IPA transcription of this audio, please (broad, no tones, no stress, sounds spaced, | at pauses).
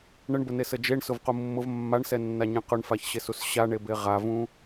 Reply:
ɳ ə ɳ b ə n e s ə d͡ʒ e ɳ s ʊ v q u mː ʊ v mː a ɳ s ɛ nː a ɲ ẽ q ʊ ɳ f a ç ɕ e s u s ɕ a ɳ e b e ʁ a v ũ